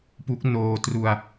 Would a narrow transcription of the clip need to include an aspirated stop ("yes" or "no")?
no